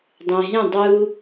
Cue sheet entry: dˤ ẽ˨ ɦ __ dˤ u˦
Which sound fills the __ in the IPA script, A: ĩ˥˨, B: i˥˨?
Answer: A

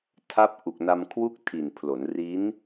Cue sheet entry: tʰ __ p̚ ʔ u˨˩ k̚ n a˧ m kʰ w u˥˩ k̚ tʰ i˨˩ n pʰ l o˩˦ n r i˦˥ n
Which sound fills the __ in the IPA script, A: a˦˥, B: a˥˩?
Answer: A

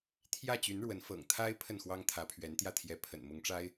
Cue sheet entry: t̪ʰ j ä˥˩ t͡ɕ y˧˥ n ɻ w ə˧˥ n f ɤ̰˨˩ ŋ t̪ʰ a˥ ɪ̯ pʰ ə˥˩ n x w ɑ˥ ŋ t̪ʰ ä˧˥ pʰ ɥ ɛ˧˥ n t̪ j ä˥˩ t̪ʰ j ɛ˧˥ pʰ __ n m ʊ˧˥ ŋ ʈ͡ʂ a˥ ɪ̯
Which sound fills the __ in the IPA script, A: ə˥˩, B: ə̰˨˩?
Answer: B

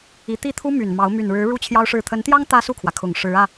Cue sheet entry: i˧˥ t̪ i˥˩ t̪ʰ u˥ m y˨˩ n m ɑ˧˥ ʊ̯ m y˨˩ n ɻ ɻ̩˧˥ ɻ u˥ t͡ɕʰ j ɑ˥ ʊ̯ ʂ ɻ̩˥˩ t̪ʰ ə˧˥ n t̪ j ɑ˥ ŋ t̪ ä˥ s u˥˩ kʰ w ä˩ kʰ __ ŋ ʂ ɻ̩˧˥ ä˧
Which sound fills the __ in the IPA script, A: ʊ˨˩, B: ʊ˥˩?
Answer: A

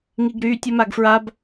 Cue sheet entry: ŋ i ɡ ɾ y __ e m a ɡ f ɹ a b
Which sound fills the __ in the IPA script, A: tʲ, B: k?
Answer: A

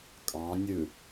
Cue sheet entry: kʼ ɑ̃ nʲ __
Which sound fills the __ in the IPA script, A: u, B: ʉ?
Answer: B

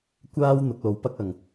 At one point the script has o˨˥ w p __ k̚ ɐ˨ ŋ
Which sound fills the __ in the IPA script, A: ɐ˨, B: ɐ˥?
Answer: B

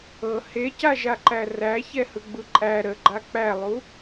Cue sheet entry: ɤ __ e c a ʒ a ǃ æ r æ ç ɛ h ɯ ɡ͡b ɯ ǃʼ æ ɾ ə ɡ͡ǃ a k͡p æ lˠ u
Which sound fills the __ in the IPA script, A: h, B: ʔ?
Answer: A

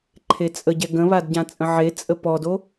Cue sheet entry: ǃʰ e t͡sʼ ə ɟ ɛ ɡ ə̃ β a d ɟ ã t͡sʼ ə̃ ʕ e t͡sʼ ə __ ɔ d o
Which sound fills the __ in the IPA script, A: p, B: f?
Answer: A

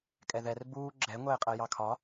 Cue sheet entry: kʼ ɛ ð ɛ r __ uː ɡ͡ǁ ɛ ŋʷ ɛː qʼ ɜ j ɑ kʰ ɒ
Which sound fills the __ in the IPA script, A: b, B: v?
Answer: A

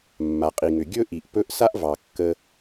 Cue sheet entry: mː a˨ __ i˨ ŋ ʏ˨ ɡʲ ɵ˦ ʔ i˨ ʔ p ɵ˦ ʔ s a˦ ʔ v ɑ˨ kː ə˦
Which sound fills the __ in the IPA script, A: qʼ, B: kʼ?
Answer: A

